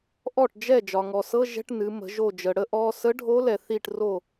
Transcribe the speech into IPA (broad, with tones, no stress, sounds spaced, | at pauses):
ʔ ɔ˥˩ ʈ d͡ʒ ɛ˥˩ d͡ʒ ɒ˩ ŋ ɔ˩ s ɤ˧˥˧ ʒ ɛ̤˧˥˧ ʈ n ɨ˩˧ m ə̤˩˧ ʒ o˧˩ d͡ʒ ə˩ ɽ ə˧˥ ʔ ɔ˧˥˧ s ə˧˥ ɖʱ o˧˥ l ɛ˩ θ i˧˩ ʈ r o˥˩